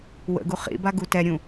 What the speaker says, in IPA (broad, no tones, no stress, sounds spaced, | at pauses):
w ə̰ ɡ u χ ḭ b a ɡ u t ɛ ɾʲ ũ